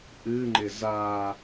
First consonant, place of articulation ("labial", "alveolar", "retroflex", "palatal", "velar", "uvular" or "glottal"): glottal